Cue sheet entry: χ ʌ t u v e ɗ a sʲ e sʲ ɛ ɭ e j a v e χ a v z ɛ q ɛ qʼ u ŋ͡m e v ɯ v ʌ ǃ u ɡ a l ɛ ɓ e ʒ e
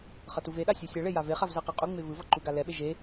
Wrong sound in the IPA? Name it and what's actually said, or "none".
none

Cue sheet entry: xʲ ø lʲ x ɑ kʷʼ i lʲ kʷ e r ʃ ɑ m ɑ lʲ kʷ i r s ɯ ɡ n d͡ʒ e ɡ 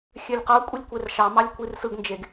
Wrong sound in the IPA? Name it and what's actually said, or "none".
x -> q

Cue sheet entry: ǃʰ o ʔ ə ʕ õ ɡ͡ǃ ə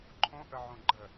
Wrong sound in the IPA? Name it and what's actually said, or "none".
o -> õ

